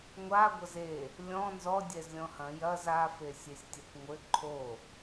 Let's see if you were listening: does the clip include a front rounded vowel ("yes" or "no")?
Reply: no